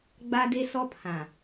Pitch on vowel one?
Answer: high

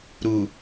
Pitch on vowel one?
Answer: low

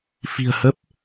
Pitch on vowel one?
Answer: low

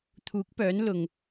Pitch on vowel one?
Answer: rising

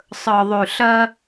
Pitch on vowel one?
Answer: low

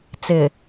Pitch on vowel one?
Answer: low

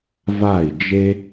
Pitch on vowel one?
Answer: falling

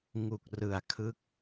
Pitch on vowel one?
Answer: low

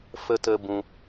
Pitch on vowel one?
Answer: high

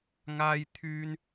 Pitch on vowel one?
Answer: high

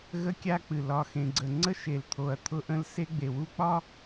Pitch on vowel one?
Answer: high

